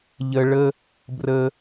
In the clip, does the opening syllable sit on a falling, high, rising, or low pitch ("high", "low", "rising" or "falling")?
high